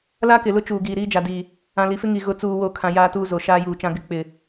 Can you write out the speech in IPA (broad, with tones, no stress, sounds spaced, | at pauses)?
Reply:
l a˦ k ɪ˨ l ʊ˦ t͡ʃ uː˨ ɡ iː˨ ɾ iː˦ d͡ʒ a˨ d iː˨ | ã˨ l i˨ f ɪ˦ ŋ i˨ ɣ ʊ˨ t͡s uː˨ w o˨ kʰ ã˨ j aː˦ t uː˦ z o˨ ʃ aː˦ j uː˨ t͡ʃ ã˦ ɡ ɪ˦ k͡p ɪ˨